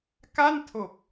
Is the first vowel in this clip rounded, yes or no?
no